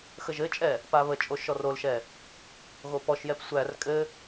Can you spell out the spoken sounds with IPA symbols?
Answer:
xəʒɘt͡ʃʼɛ | paβət͡ʃʼo ʃɔrolʃɛ | ɣopɔʃjɛp sʷær kʼɘ

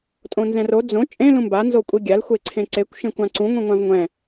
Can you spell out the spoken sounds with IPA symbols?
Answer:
tʼõnzɛ̃ro d͡zõ t͡ʃʼẽ lũmba nzokʷʼiɡʲal xʷeǀʰẽǀekʷ ʃẽkʷãǀũ ŋʷĩŋʷãvŋʷɛ̃

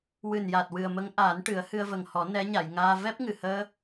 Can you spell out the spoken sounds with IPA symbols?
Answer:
wɨ˨˩nja˨˩t̚ wɨ˨˩ə̯mə˧˥ŋʔaː˨˩˦nʈɨ˨˩˦ə̯ hɨ˧ə̯və˨˩ŋhɔ˨˩˦ nɛ˧˥ɲa˨˩˨jŋaː˧ vɛ˦˥p̚ ŋɨ˨˩həː˧

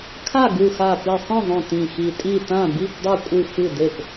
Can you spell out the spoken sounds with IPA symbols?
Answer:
kʰa˥˩ɡu˧˩xa˧˩ pi˧˩sˤĩ˥˩ðˤõ˧˩ tĩ˧˩xi˧˩tʼi˥˩ tã˥˩bi˥˩pdˤe˥˩ kʷʼɨ˥˩fɨ˥˩de˥˩p

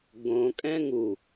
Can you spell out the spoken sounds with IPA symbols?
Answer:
ɡõ kʼɛ̃ŋu

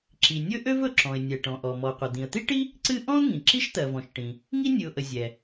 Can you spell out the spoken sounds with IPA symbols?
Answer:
ǁi˩ nʲɵ˥ʔø˥v ɵ˩ǁɔ̃˩ɪ̯nʲɛ˩ʈɔ̃˩ ʔɔ˩mɔ˩qʷə˩ d̪ĩ˩ə̯t̪i˥ʈi˥ | ǀɨ˥ ʔɔ̃˥ʊ̯ŋĩ˩ ǁi˥ʃt̪ɜ˩vɔ̃˩ʃʈĩ˩ | ŋi˥nʲɨ˩ʊ̯ʔə˩ zʲɛ˩

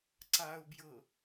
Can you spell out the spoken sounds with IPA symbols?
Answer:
ǀaʊ̯bjɤ

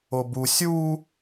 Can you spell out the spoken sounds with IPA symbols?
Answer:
obu sʲu

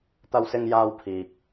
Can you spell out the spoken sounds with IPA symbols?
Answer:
t̪ɐ˧wsɪ˧ŋjaː˧wpʰiː˨k̚

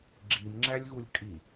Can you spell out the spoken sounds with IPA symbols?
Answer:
ɡ͡ǁimŋ͡ǁælʲɣulʲ kʼi

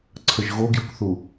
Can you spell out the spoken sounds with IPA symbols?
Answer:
ǀʰəʒɣoɡjukθu

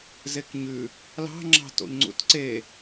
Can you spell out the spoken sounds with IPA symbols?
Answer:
zekɲʉ | lɑ̤ ŋ͡ǁɑ̤to̰ʎŋ͡ǀṵtǀe

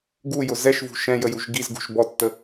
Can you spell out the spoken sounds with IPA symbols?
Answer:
ɡujʊ zɛʃvṳ ʃɛ̃jə juʒɡizɡṳʃ bɔtːə

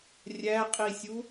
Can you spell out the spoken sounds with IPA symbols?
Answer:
rʲæqʼisʲu

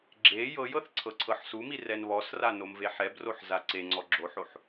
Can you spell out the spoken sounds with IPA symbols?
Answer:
ɡ͡ǁe jɤjɤθ ǀʰɤǀʰɤħsumi rɛnβɔsra nomveħɛbroħ zaǀeŋ͡ǀɔ ɡ͡ǁoħoħ

